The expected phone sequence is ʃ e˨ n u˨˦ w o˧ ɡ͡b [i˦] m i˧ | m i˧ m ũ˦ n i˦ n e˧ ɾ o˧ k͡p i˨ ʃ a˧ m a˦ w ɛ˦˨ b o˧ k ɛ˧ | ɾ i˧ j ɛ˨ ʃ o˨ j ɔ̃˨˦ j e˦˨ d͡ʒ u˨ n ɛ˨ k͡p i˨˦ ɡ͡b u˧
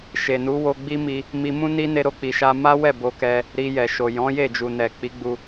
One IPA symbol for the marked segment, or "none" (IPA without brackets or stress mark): i˦